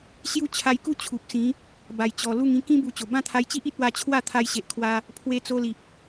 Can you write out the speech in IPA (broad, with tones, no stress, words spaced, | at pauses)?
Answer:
ɕju˦t͡ɕʰa˧jku˥˧ t͡ɕʰu˨p̚sĩ˨˦ | ba˨˩jt͡ɕɔ˨˩ lu˥˧ŋĩ˥˧ kĩ˦ bu˧t͡ɕo˨˩ bã˥˧t̪ʰa˧jt͡ɕi˦ʔ i˦t̚wa˧t͡ɕʰwa˥˧ t̪ʰa˧jɕe˨ʔkʰwa˧ | pʰwe˧t͡so˧li˨p̚